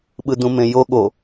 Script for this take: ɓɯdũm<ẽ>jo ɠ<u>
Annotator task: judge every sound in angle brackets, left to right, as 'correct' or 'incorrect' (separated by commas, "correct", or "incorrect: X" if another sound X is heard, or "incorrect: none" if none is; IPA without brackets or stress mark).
correct, incorrect: o